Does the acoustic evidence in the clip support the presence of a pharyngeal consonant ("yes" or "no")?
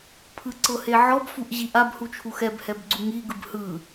yes